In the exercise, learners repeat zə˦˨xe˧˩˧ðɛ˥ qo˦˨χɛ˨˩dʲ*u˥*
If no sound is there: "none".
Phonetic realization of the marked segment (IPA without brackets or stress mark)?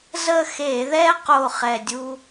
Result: u˥